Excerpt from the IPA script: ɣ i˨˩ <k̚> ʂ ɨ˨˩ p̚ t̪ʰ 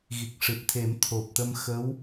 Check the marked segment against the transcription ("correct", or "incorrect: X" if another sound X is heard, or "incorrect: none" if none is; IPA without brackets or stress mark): correct